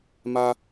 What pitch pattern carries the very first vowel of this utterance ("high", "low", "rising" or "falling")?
high